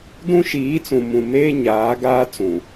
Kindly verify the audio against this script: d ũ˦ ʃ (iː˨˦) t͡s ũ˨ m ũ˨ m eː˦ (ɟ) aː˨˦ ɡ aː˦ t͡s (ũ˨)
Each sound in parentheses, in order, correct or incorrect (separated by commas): correct, incorrect, correct